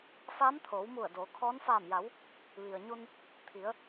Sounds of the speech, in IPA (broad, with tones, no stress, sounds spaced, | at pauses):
f aː˧˥ m t̪ʰ oː˩˧ w m u˧˩ ə̯ d oː˩˧ kʰ ɔː˧˥ n f aː˧˩ m j a˩˧ w | ʋ i˩ ə̯ ɲ u˧ n | t̪ʰ i˩˧ ə̯